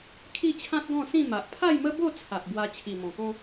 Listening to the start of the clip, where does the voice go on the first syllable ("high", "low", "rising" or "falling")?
falling